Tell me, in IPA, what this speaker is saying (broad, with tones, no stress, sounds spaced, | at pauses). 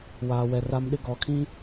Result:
w aː˨ w ɛ˨ r a˦ m ɗ ɪ˦ ɡ ɔ˨˦ kʰ ĩ˦